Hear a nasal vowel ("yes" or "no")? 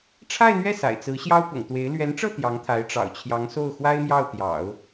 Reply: no